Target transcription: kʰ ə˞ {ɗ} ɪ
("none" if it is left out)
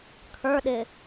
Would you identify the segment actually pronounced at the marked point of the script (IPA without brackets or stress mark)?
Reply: ɗ